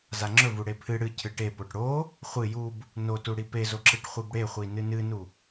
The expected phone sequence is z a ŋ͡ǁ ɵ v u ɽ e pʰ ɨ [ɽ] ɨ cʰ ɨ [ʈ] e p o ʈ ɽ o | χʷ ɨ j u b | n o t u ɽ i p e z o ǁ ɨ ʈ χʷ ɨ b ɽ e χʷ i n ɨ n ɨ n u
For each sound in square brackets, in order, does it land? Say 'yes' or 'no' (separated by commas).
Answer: yes, yes